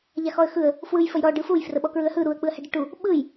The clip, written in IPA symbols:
ʎaxɔə̯xɯə̯ | fwɯj fəjɾɔ ɖɯfuj frəɓɔkɹɯə̯hɯ ɾuə̯ k͡pɯə̯hɛɖɯʈu | ɓɯj

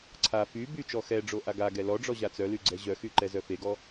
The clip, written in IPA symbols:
ǀʰa fy byt͡ʃɔ xɛɖ͡ʐo ʔaɡaɡɛ lɔɖ͡ʐɔ ʑat͡sœly ɡ͡ǀɛʑœxy ǃɛzœfeɡɔ

